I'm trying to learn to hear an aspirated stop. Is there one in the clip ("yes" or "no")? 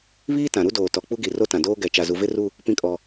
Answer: no